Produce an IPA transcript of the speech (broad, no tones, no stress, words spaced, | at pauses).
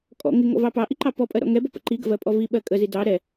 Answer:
kʼɔ̰ ŋɪŋɔ̰vɑ pɑʔiǃɑ pɔpʼɜɾɔ̰ ŋɛbɔpə̰ ǃiɡə̰vɜpʼɔ viɓɜ kʼəzi dɑ ɾɛ